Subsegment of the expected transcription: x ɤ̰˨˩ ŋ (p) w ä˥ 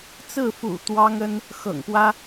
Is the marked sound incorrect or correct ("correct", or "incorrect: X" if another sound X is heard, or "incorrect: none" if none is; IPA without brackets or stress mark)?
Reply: correct